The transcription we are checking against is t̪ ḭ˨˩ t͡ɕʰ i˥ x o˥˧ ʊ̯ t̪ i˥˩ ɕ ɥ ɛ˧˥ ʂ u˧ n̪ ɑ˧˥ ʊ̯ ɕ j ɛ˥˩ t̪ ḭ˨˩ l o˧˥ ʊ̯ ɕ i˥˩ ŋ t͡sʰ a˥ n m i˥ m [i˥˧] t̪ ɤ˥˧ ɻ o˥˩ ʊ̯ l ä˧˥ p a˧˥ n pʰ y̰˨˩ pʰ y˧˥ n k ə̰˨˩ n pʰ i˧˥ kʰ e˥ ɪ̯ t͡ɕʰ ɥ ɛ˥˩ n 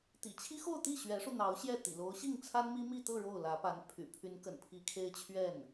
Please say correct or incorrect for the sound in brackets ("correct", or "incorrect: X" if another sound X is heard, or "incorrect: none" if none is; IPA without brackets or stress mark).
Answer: correct